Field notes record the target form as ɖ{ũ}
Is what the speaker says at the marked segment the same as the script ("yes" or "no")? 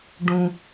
yes